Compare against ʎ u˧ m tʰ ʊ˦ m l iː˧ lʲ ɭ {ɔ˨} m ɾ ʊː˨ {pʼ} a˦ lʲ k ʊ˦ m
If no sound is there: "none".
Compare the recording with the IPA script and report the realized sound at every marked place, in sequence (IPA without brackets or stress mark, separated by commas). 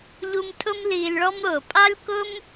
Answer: ɔ˦, pʼ